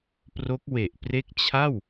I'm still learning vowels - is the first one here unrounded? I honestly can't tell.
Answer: no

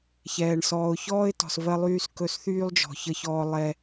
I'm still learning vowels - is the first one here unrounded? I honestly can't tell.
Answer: yes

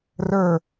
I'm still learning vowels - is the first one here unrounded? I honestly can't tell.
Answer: yes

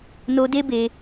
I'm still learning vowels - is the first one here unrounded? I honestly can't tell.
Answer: no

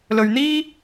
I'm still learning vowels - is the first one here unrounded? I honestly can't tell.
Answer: no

